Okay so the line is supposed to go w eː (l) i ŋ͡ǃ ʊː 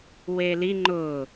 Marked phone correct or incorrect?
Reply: correct